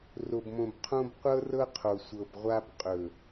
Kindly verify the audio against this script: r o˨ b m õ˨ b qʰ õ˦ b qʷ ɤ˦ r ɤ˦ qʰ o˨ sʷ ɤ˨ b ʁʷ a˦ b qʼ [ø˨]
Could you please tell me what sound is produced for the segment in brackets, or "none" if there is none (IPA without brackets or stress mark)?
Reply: ɵ˨